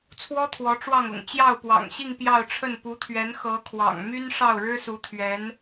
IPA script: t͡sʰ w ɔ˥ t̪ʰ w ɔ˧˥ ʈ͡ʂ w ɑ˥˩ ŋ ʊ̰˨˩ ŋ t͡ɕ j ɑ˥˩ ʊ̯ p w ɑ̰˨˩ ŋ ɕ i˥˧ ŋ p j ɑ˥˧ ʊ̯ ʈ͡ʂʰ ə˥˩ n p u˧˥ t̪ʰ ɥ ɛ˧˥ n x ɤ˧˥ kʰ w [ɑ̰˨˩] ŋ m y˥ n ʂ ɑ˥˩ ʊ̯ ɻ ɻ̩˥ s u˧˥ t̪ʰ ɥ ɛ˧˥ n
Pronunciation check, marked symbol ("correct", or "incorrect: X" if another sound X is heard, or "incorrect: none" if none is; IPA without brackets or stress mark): correct